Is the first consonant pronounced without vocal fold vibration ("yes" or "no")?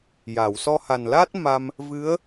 no